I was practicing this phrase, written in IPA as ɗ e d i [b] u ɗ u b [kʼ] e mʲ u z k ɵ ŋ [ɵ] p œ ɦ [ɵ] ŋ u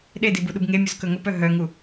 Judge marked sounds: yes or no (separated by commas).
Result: yes, no, yes, no